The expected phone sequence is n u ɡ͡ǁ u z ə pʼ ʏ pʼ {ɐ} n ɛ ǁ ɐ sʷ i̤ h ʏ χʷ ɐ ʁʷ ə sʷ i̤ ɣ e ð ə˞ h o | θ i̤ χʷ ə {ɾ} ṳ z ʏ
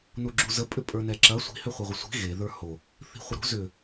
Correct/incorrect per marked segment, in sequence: incorrect, correct

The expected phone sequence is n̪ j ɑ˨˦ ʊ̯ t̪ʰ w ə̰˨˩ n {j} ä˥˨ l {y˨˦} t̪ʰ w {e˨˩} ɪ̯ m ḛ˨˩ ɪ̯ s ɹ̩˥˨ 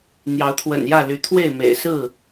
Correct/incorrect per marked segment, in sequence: correct, correct, incorrect

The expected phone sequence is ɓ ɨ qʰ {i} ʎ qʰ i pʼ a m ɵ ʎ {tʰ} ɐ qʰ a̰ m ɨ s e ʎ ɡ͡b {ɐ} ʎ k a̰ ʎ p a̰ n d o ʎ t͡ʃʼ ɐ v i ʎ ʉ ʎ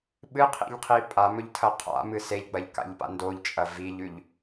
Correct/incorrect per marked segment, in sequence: incorrect, correct, correct

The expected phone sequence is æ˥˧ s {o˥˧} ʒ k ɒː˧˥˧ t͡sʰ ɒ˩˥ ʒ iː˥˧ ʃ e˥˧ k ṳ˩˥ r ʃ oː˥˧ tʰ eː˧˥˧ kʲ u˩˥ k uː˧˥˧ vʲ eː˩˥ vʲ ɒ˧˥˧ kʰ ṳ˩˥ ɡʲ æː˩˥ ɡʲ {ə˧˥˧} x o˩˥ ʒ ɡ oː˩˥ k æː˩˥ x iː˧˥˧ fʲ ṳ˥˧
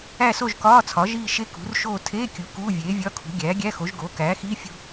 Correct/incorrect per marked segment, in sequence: correct, incorrect

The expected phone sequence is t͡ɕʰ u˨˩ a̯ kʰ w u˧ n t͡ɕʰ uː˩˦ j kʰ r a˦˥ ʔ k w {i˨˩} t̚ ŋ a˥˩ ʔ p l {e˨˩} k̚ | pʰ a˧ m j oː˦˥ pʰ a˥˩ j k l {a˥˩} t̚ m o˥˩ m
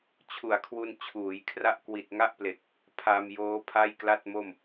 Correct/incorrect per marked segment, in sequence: correct, correct, correct

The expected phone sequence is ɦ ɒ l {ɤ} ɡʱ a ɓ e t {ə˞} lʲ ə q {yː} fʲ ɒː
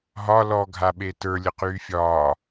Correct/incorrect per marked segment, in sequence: incorrect, correct, correct

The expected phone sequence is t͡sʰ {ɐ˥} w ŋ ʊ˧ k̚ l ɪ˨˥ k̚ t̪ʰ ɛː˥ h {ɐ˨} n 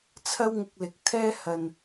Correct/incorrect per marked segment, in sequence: correct, correct

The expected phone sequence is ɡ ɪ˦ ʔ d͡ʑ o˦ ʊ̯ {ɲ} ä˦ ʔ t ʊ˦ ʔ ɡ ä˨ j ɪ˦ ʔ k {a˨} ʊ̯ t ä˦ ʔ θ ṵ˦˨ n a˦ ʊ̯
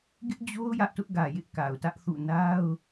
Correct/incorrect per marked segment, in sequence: incorrect, correct

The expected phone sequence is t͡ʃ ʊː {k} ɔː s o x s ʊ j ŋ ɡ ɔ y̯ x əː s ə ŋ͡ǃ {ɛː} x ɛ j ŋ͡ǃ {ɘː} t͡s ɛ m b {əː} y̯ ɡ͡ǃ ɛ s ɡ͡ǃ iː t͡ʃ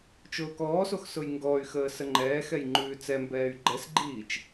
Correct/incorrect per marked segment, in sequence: correct, correct, incorrect, incorrect

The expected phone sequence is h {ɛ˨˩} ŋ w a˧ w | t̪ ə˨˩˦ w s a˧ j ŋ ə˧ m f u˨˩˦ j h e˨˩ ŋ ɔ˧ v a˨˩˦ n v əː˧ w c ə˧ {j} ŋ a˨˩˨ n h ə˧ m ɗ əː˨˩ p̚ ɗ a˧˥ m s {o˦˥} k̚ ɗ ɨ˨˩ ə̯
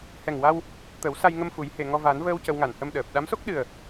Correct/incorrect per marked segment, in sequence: correct, incorrect, correct

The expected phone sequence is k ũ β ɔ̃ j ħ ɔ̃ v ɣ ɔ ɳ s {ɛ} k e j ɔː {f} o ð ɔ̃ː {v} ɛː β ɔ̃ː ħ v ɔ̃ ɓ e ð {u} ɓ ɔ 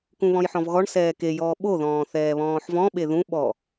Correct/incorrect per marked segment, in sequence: incorrect, incorrect, incorrect, incorrect

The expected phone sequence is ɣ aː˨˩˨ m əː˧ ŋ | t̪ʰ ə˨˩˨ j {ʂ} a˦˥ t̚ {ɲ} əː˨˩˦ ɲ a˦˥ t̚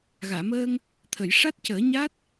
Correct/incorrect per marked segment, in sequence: correct, incorrect

